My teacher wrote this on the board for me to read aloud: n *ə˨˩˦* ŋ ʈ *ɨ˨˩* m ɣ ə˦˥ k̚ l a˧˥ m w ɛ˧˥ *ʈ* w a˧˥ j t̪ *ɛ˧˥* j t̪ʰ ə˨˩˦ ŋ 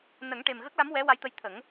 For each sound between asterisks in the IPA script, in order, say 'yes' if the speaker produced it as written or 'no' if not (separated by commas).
yes, no, no, no